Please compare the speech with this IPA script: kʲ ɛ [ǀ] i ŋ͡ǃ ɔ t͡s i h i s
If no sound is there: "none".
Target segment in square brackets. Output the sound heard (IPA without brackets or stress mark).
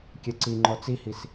ǀ